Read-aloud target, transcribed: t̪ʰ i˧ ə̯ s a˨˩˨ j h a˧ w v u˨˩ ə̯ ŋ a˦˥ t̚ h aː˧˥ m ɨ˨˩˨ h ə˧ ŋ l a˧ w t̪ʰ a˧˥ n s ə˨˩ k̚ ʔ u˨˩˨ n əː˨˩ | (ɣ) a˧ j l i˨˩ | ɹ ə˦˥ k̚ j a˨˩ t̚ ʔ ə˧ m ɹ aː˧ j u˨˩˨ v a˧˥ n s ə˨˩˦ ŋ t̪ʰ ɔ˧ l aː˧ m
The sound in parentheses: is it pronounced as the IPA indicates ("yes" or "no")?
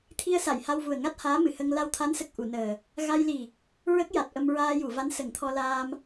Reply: yes